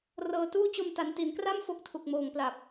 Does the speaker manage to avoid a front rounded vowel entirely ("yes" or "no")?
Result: yes